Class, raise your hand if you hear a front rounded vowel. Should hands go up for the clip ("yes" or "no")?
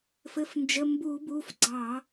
no